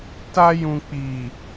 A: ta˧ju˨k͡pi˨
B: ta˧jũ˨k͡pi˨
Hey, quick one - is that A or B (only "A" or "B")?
B